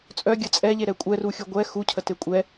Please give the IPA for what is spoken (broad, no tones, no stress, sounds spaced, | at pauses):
t͡sʼ œ ɡʲ ə t͡sʼ ɛ ʎ e ɾ ɛ kʷʼ ɛ r u xʲ u ɡʷ ɛ x u cʰ ə t e kʷʼ ɛ